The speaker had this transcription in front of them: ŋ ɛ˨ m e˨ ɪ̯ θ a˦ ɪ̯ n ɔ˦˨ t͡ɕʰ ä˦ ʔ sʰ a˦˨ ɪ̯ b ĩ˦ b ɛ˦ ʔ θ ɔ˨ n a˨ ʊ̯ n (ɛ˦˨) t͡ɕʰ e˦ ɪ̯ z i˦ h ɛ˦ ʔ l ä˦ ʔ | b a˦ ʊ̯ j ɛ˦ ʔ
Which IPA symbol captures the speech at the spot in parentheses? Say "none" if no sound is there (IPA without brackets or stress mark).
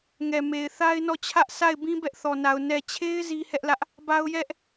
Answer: ɛ˨